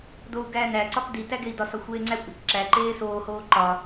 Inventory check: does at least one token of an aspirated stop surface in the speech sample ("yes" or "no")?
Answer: no